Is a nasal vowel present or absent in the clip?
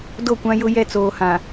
present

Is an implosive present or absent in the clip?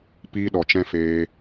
present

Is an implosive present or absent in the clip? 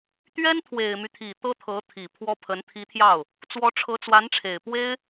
absent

